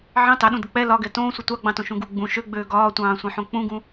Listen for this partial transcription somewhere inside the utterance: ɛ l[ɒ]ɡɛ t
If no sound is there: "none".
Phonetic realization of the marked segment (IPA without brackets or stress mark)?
ɒ